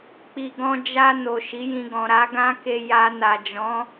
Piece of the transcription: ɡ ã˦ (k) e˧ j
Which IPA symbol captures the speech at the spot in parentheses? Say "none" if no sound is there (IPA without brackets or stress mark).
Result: k